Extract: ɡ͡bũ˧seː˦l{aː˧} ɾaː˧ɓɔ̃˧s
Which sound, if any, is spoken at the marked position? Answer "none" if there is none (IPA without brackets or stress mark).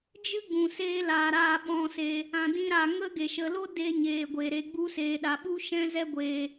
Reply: aː˧